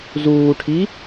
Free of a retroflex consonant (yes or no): no